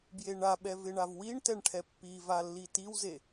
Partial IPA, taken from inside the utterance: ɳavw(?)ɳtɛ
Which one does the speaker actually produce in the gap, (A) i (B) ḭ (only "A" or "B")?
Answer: A